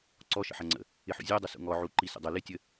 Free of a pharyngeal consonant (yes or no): no